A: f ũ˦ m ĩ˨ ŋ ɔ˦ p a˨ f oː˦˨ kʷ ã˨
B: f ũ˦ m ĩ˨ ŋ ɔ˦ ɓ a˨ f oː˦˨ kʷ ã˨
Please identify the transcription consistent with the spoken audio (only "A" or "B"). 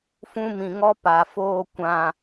A